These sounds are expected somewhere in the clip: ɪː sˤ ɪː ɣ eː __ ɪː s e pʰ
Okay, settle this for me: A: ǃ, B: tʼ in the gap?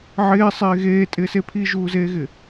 B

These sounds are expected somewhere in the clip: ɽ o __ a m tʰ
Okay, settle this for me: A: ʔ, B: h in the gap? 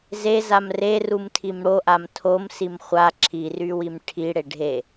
A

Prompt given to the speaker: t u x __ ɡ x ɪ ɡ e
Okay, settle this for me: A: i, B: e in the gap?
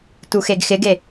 B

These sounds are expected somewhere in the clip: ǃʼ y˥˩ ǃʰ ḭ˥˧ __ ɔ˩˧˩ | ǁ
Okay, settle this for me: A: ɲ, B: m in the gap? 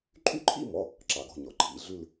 B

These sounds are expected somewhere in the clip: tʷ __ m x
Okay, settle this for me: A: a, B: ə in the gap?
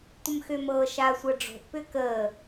B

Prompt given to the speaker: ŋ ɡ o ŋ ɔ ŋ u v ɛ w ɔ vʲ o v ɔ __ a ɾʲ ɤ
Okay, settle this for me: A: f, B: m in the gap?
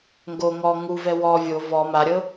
B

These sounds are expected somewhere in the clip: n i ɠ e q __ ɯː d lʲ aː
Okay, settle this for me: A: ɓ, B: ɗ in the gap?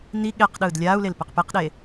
B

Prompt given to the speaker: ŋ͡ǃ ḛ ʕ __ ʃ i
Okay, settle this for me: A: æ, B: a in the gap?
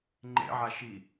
B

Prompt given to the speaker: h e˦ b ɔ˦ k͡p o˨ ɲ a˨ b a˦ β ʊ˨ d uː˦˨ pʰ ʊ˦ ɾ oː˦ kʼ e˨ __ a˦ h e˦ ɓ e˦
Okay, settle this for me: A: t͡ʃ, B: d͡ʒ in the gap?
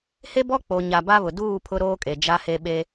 B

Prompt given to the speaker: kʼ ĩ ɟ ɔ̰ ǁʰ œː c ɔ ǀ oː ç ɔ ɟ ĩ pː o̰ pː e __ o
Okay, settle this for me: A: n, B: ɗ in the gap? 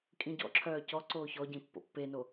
A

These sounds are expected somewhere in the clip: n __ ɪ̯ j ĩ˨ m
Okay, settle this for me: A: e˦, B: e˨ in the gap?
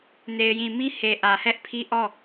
B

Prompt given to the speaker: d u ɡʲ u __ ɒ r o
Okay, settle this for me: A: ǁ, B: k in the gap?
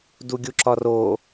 A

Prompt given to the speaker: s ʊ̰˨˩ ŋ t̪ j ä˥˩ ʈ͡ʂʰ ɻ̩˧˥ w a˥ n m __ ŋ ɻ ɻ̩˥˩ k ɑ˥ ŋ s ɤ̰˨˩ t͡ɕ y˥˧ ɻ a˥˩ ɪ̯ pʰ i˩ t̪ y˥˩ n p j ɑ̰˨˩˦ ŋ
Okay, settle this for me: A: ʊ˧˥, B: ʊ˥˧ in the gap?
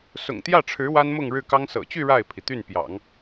B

